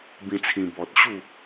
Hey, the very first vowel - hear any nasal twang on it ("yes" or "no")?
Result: yes